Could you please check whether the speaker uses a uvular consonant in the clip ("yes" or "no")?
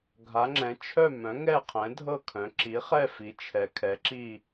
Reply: yes